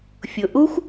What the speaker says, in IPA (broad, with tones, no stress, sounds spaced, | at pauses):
fʲ ʊ˩ ʔ u˥ xʷ